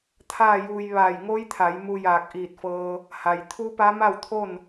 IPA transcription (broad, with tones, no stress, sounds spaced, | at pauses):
t̪ʰ aː˥˨ j uː˧ j ʋ aː˧˩ j ŋ o˧˥ j t̪ʰ a˩˧ j m u˧ j aː˧˩ k̚ ʔ iː˧˩ t̚ f ɤː˧ | h a˩ j t̪ʰ u˧˥ p a˧˥ m a˥˨ w t̪ʰ o˥˨ n